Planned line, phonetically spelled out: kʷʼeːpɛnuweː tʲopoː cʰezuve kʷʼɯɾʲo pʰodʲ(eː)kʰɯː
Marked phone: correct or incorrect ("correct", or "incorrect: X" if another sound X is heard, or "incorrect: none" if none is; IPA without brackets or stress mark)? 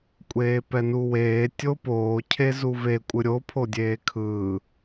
correct